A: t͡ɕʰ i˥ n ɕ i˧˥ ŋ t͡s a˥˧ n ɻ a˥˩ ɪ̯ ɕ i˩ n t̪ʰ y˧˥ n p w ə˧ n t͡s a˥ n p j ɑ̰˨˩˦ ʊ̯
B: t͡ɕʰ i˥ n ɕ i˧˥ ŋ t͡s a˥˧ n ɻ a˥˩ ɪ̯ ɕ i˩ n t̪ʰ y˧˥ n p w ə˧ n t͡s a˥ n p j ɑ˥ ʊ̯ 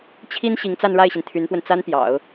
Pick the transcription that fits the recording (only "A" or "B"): A